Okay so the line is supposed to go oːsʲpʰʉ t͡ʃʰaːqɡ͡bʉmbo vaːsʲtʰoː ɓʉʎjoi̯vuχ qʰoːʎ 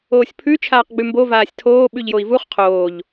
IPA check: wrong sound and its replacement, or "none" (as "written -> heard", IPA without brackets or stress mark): none